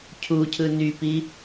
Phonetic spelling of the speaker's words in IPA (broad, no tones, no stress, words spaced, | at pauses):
cʰucʰɯ nypi